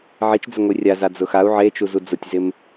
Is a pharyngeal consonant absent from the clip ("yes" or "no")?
no